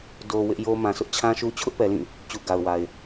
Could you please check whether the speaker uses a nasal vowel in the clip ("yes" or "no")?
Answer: yes